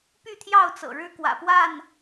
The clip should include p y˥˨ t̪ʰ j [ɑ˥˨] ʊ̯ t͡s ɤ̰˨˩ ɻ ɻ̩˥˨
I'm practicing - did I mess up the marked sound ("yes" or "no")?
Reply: no